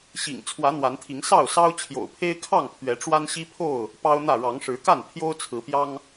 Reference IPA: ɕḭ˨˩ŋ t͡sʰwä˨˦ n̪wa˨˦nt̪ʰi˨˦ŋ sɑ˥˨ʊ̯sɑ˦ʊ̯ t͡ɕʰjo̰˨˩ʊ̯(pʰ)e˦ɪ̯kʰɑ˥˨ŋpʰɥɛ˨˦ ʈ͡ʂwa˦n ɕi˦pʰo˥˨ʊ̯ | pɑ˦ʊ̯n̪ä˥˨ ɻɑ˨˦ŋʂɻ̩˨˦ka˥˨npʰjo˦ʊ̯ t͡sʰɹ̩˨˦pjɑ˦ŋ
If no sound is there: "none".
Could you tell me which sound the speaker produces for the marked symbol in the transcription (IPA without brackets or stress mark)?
pʰ